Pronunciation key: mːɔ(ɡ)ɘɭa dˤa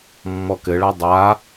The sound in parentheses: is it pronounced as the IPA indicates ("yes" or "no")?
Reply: no